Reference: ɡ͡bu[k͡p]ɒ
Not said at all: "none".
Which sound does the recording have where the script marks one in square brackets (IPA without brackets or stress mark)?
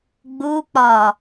k͡p